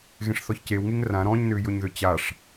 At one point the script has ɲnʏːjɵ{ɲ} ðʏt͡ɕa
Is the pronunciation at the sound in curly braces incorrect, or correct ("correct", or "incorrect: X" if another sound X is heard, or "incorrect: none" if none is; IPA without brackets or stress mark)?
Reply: correct